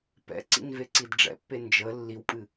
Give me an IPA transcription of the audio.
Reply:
p ɛ̰ ǀ ḭ n v e ǀ i d ɖ͡ʐ ɛ̰ pː e n d͡ʒ ə lː i w pʼ ɨ

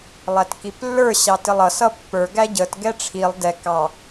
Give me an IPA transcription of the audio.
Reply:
lˠ æ t k i p lː ə˞ ɕ ɑ t ɪ lˠ ʌ s ʌ pː ə˞ ɡ æ ɟ ə t ɡ ɛ ʈ͡ʂʰ i lˠ d ɛ k ɑ

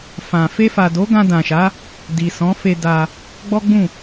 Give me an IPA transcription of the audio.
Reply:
f ã˨ f e˧ f a˨ d o˨˦ ɡ ã˧ d ã˨ ʃ a˨˦ | d i˨ s ɔ̃˨˦ f e˧ d a˧ | ɡ͡b ɔ˦ ɡ͡b ũ˦˨

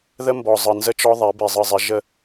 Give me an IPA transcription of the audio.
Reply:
ð ə˦ m b ɔ˨ zˤ ɯ˨ n z ə˦ t͡ʃ ɔ˦ ðˤ ɛ˨˦ b i˨ zˤ ɯ˨ zˤ ɪ˨˦ ʒ ə˦

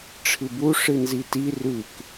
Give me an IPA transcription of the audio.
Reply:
ʈ͡ʂʰ ɨ b u ʂ ɨ n z i t i r ʉ k

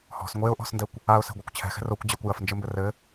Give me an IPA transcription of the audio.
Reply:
h ɔ̤ s ŋʷ e ʊ̯ ʔ ɔ̤ s n d ɛ kʷ | a ʊ̯ s ɛ̤ ɡʷ ɛ kʷ t͡ɕʰ ɛ̤ x ɛ̤ r o kʷ d͡ʑ e kʷ j ɐ f n d͡ʒ ɘ m b ɘ r ɘ

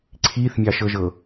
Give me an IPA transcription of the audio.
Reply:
ǀʰ i θ mʲ ɑ ʃ ɤ ʒ ɤ

